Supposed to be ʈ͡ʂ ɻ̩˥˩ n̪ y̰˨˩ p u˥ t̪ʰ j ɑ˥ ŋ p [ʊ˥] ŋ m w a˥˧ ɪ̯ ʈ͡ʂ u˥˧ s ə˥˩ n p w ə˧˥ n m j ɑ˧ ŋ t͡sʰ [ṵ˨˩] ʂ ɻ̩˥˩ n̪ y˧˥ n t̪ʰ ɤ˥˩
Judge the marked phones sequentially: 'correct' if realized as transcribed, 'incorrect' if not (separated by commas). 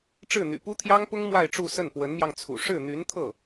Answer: correct, correct